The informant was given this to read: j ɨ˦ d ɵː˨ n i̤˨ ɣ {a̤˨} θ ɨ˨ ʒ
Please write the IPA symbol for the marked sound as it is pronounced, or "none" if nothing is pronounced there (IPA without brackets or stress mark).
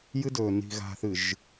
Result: a̤˨